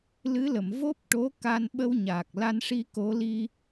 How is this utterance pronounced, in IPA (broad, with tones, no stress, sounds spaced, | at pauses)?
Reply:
l ɨ˧˥ l ə˨˩˨ m v o˦˥ p̚ ʈ o˧˥ k a˧ n ɓ ə˧ w ɲ aː˨˩ k̚ l a˧ n ʂ i˧ k o˧˥ l i˧